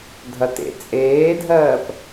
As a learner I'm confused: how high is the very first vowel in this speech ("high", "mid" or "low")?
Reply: low